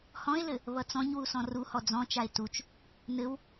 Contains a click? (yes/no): no